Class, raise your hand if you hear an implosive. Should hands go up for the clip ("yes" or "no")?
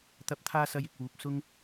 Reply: no